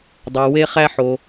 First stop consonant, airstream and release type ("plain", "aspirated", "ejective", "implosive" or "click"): plain